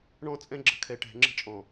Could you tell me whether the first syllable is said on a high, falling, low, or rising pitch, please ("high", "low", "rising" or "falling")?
falling